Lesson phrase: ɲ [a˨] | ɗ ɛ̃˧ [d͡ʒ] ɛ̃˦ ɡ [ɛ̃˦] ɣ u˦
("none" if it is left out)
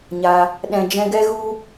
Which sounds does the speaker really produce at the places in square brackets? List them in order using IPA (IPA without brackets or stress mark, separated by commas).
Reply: a˧, d͡ʒ, ɛ˦